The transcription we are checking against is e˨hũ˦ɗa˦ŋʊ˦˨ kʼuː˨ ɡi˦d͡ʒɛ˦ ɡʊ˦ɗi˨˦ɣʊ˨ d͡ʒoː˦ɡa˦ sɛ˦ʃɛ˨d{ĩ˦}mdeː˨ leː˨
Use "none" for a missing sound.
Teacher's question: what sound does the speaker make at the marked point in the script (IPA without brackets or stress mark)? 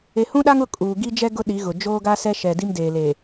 i˦